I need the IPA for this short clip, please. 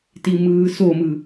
t i m ɯː s o m ɯ

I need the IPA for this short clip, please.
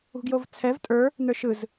ṳ ɡ j o v t͡sʰ ɛ v tʼ ə˞ | n ə˞ ʃ ɯ z

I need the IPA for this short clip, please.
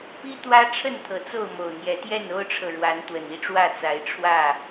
p i˦ t̪ w ä˦ ʈ͡ʂʰ ə˥˨ n t̪ʰ ɤ˨˩ t͡s o˥˨ ʊ̯ m o˨˩ ʊ̯ n̪ j ɛ˨˦ t̪ j ɛ˥˨ n o˦ ʊ̯ ʈ͡ʂʰ ɤ˨ ɻ w a˨˦ n t̪ w ə˨˩ n i˥˨ ʈ͡ʂ w ä˥˨ t͡s a˨˦ ɪ̯ ʈ͡ʂʰ w ä˥˨

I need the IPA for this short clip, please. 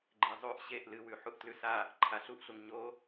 ɡ͡ǃ e zˤ ʉ ʔ ɕ e ʔ l ɨ w ʉ ħ u ʔ t l ʉ s a | ǃʰ a ɬ u ʔ ɬ u ŋ ɲ o

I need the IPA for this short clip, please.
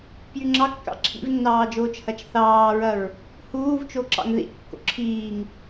p j y ŋ͡ǁ ɑ kː ɑ̰ ǁʰ ḭ v nː ɑː d͡ʒ oː t͡ʃ h ɐ t͡ʃ θ ɑː ɹ ɐ ɹ | h uː v t͡ʃ o ǁ ɑ̰ ŋ ð ḭ kː o̰ ǁʰ iː ŋ

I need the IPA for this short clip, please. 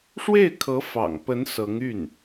ʂ w e˥˩ ɪ̯ kʰ ɤ˧˥ f ɑ̰˨˩ ŋ p ə˧˥ n s ɤ˧˥ ŋ y˥˩ n

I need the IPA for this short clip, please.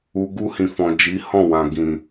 u˨ ɡ u˧ h ĩ˨ f ɔ̃˨ d͡ʒ i˨˦ h ɔ̃˦˨ w ã˨ ɡ ĩ˨

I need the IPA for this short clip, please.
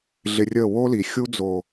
ɮ ɪ˧ rʲ ə˦˨ w o˦ l i˨ xʲ u˦ d͡z o˨

